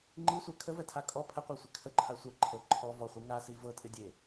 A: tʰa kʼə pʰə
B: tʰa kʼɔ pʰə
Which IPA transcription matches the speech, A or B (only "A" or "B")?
B